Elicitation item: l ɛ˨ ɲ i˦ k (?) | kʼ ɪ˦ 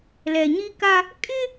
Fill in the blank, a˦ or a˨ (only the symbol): a˦